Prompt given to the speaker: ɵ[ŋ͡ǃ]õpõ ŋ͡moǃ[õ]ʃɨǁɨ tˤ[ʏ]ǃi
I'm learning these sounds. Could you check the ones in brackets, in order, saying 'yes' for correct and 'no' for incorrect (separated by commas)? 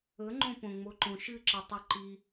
yes, yes, no